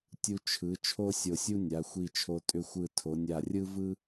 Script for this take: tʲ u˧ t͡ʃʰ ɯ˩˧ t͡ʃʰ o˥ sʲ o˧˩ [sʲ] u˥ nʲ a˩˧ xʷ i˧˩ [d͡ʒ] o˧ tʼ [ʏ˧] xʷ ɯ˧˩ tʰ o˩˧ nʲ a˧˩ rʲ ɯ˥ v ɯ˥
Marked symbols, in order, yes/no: yes, no, yes

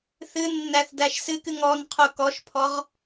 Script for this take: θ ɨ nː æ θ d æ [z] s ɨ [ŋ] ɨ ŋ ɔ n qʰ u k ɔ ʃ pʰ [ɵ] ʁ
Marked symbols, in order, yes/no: no, no, no

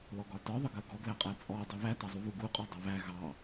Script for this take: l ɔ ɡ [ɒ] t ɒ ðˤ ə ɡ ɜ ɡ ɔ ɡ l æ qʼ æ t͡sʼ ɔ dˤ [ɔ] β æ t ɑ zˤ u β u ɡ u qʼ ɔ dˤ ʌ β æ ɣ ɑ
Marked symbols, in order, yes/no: yes, no

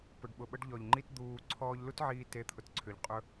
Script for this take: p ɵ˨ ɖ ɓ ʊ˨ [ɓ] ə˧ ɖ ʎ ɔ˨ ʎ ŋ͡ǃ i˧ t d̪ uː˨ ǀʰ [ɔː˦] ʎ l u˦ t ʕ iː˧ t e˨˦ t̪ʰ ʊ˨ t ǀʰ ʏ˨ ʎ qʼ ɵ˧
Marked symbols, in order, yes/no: yes, no

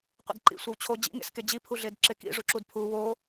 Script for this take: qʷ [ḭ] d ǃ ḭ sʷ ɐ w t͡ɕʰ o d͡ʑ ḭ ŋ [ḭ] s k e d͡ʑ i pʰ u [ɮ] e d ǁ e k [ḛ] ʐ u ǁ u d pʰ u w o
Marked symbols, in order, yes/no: yes, no, yes, no

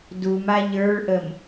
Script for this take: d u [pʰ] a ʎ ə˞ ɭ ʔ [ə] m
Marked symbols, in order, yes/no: no, yes

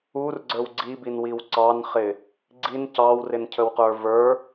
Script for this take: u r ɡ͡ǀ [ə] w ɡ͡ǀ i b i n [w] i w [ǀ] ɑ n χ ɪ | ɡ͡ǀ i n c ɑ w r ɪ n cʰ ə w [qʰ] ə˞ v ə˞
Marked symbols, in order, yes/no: no, yes, yes, no

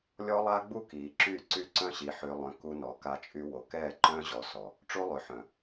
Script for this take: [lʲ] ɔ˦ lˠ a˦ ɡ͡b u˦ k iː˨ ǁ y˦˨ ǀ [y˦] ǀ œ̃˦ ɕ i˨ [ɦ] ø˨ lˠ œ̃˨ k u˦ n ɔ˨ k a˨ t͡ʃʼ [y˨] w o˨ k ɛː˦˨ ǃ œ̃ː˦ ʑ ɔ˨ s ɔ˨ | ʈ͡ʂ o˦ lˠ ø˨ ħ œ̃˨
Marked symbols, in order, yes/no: yes, yes, no, yes

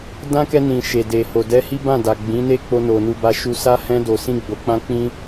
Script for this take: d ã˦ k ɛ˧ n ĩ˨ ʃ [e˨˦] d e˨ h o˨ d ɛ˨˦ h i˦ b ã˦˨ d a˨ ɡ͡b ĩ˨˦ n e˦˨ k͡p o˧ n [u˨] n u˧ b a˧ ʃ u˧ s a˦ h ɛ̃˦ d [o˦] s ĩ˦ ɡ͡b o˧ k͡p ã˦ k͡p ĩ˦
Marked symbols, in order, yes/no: no, no, no

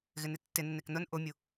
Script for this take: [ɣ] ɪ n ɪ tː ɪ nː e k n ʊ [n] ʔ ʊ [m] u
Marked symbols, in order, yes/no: yes, yes, no

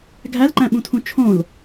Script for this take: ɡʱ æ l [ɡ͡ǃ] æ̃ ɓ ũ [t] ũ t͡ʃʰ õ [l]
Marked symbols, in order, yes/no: no, no, yes

